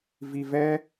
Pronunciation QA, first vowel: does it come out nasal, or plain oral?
oral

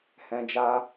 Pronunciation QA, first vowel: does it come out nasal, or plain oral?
nasal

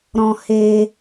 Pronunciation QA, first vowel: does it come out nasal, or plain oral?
nasal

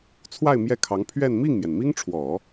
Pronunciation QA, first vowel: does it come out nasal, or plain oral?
oral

